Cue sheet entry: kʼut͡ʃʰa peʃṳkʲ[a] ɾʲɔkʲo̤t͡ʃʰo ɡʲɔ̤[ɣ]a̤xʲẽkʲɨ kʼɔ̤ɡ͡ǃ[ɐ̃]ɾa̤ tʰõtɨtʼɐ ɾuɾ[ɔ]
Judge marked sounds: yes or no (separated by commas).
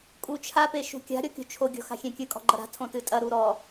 no, no, no, yes